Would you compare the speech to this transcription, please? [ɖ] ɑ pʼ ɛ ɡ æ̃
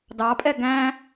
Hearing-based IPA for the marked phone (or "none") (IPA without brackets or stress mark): d